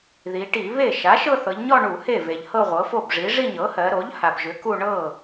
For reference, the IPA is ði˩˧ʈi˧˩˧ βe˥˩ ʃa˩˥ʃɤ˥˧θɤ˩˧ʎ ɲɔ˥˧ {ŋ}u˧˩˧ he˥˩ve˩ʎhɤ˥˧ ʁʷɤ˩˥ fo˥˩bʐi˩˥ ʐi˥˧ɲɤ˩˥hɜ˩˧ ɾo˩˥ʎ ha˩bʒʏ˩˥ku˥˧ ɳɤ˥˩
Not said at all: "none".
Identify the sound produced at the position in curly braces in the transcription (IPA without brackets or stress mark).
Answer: ɳ